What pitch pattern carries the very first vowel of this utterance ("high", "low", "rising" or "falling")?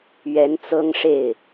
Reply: rising